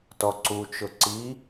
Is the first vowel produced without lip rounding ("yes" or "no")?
no